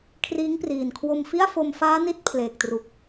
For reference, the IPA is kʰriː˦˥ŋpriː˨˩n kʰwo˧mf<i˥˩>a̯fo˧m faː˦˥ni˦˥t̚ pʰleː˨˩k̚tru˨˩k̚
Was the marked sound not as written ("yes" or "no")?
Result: no